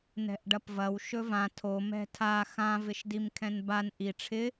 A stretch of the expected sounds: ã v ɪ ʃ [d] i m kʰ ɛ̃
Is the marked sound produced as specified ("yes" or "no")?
yes